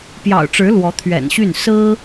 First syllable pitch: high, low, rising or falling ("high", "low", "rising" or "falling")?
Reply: low